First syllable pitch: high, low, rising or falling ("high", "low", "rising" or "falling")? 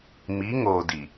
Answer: rising